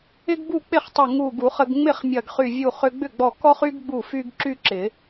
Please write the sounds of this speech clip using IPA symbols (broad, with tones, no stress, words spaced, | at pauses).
ɪ˥ɡbu˥˩ k͡pɪ˥˩χtˤɪ˧˩ ŋu˧˩ɡu˨˩˦χə˧ɡ ŋ͡mɪ˥˩χ mʲɐ˧˩ɡχy˧˩ vʲu˧˩χʏ˧ɡ͡bʏ˥˩ɡ͡bɔ˧˩ kɔ˥χy˥ɡ ɡ͡bu˥˩fy˥ɡ ǁy˥ǁɪ˨˩˦